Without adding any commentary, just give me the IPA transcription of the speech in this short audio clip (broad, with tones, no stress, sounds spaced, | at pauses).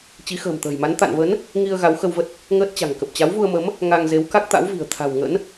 t͡ɕ i˨˦ x ə̤ː˨˩ m t̪ ə̤ː˨˩ j m a˨˦ n t̪ a̰˧˨ n v ə˨˦ n | ŋ i˧ ə̯ ɣ a˨˦ w x ə˧ w v ə˦˥ t̚ | ŋ əː˦˥ t̚ t͡ɕ a̤˨˩ ŋ k ə˨˩ p̚ t͡ɕ a˨˦ w v u˧ ə̯ m ə˨˦ m | ŋ a˧ ŋ z e˨˦ w k a˦˥ k̚ t̪ a̰˧˥ w v i̤˨˩ ə̯ t̪ʰ a̤˨˩ w ŋ ə̰˧˥ n